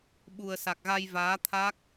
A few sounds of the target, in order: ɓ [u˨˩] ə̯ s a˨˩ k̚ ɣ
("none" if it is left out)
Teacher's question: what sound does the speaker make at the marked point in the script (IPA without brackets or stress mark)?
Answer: u˨˩